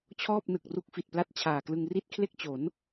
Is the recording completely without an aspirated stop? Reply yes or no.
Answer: no